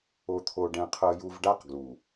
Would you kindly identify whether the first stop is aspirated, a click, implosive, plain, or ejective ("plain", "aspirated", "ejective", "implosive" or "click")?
aspirated